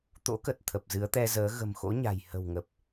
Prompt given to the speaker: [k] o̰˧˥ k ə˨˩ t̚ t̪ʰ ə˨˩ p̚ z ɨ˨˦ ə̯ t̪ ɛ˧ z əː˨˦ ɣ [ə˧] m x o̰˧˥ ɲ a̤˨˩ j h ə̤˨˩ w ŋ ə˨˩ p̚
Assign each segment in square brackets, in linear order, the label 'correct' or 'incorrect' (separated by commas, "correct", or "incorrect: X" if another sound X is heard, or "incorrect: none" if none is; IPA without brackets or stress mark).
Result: incorrect: t̪, incorrect: ə̤˨˩